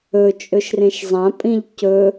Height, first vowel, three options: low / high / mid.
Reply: mid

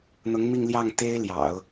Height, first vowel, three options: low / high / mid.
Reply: high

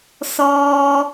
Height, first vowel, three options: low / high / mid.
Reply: mid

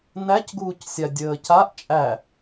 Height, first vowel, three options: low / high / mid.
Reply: low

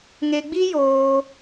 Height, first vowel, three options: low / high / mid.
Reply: mid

